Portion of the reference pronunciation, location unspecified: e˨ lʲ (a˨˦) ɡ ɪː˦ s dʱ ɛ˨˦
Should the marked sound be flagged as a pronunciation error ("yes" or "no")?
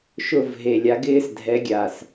no